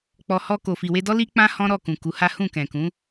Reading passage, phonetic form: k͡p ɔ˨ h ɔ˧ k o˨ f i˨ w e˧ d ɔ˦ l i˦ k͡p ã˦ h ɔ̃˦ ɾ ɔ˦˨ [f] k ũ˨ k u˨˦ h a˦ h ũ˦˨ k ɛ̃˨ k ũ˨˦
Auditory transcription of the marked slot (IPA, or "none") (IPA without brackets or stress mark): none